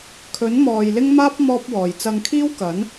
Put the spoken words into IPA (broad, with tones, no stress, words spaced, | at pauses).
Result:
kʰɵ˨˥nmɔː˨j lɪ˥ŋmaː˥p̚ mɔː˥p̚wɔː˨j t͡sɐ˧ŋkʰiː˥wkɐ˨˥n